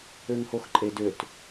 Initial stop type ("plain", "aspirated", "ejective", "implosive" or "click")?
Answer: click